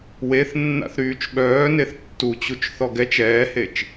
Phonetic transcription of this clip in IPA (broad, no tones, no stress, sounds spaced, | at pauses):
w e θ nː a̰ θ ɾ yː t͡ʃ ɓ œː n e θ tː u t͡ɕ u t͡ʃ θ ɔ ɡ ɛ t͡ʃ ɛː h e t͡ʃ